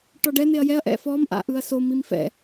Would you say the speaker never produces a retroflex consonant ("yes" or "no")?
no